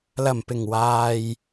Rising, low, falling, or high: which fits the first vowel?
low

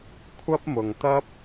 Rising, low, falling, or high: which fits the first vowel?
high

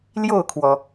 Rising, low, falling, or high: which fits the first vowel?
falling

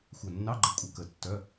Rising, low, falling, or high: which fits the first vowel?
low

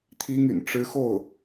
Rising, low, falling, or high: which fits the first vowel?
high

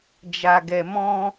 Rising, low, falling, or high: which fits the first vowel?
low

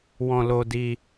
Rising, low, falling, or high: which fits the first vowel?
high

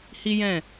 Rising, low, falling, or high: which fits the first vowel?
high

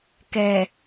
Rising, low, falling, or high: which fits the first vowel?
low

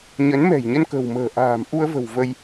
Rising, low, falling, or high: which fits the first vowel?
rising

